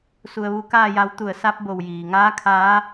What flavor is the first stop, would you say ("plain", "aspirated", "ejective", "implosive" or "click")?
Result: plain